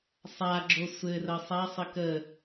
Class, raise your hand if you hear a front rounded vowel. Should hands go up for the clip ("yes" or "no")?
no